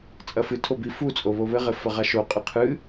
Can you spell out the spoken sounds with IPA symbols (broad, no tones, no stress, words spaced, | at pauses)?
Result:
t͡sʼɐfɨtʰo bifut͡sʼo βoβɘʁɘ fɐʁaʃoqʼɨ qʰɨ